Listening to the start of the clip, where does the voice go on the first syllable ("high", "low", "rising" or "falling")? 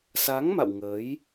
rising